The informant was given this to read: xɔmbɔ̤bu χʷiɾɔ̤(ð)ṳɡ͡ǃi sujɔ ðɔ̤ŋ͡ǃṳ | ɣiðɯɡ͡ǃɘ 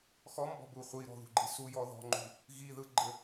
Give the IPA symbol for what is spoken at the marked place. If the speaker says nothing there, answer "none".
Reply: ð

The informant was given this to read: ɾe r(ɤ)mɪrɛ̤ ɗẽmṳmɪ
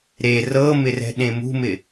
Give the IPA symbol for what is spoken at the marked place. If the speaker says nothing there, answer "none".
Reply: ɤ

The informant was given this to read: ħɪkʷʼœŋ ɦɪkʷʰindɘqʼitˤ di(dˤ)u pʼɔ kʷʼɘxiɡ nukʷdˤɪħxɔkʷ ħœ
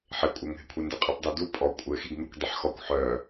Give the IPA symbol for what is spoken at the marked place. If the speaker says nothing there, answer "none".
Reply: d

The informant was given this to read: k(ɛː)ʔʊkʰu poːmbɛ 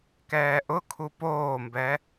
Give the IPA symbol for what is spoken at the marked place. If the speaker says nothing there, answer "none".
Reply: ɛː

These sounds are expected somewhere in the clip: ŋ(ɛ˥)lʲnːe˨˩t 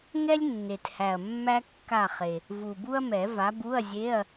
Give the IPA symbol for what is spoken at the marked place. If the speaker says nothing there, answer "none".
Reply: ɛ˥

